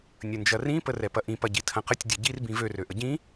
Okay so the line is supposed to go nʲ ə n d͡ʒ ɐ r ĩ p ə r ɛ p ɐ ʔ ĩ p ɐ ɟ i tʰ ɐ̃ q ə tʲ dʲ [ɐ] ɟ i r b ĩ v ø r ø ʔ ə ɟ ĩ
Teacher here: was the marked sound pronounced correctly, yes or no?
yes